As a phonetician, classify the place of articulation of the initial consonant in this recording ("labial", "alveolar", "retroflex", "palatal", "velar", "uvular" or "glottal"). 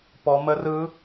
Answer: labial